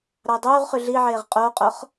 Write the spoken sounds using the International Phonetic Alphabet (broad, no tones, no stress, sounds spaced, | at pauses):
ɾ ɑ j dˤ yː ʁ χ y ɮ iː ʕ eː ʁ qʼ oː qʼ o χ